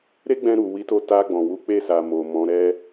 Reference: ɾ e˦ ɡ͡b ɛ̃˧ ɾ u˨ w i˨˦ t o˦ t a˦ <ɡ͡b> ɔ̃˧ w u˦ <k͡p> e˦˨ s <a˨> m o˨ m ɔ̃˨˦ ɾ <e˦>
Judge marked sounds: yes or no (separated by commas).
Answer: yes, yes, yes, no